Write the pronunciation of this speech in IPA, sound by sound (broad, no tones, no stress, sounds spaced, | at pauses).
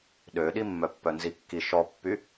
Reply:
ɗ ø ɗ i mː œ pː œ n z i kː i ʃ ɔ pː y